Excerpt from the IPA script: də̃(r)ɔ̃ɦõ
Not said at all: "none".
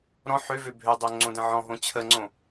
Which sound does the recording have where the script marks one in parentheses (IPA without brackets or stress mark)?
ʕ